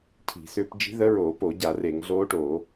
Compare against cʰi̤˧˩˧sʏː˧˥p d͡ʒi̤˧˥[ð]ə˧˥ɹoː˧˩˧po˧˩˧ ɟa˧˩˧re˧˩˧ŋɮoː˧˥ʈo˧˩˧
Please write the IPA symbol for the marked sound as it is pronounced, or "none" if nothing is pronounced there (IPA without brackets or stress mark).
ð